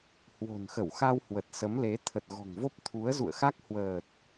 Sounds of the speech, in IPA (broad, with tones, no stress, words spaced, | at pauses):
hwo̤˨˩nxə˧˩wxa˧w hwə˨˩t̚sə˨˦mle˨˦ t̪ʰə˨˩t̚ɣɔ̤˨˩ŋvo˦˥p̚ t̪ʰu˨˦ə̯zṵ˧˨ə̯xa˦˥k̚ hwəː˨˩t̚